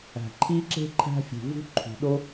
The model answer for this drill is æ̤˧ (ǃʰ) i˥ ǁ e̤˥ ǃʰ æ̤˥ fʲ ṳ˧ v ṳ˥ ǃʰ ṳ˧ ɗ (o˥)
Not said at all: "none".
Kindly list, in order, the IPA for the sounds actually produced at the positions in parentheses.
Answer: ǃʰ, o˥

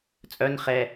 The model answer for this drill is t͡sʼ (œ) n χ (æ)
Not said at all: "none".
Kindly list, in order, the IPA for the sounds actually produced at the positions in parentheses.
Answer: œ, ɛ

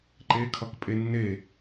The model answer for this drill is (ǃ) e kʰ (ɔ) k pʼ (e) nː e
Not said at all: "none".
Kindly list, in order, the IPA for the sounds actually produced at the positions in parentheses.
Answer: ǃ, ʌ, e

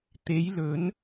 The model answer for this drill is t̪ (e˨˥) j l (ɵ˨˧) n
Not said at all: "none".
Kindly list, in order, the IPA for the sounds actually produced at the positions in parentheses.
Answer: e˨˧, ɵ˨˧

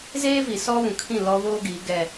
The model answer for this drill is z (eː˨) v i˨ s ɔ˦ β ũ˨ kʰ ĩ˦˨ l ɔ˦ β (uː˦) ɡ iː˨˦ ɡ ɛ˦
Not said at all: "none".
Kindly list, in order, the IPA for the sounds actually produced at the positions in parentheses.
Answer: eː˦, oː˦

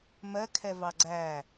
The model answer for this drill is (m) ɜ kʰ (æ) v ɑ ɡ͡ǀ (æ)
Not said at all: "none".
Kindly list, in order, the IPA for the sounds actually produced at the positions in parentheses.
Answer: m, ɛ, æ

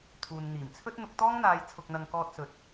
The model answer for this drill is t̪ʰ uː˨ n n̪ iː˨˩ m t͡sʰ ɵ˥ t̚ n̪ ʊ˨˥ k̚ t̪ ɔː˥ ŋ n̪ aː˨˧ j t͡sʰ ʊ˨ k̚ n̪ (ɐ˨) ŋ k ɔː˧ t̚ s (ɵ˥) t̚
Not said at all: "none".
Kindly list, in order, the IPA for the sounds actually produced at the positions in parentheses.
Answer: ɐ˨, ɵ˨˥

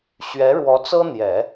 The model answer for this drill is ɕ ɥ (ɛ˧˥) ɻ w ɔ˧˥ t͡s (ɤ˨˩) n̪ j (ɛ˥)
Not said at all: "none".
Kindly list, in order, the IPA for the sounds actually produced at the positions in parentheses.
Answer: ɛ˧˥, ɤ˥, ɛ˨˩˦

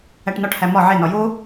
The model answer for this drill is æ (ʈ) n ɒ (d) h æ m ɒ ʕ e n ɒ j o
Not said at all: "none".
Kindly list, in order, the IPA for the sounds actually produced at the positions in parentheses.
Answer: ʈ, ʈ

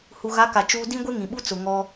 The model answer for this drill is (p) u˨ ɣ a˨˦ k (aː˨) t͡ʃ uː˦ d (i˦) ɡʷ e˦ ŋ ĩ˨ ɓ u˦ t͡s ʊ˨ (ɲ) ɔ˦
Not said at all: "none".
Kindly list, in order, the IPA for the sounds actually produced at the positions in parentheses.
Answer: h, a˨, ĩ˦, ŋ

